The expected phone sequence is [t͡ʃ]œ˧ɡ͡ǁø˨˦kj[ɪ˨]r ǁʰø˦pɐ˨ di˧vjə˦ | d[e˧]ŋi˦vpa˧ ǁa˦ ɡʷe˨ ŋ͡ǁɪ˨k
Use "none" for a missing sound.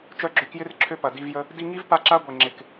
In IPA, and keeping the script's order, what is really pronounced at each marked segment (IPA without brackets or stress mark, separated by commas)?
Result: t͡ʃ, ɪ˦, i˧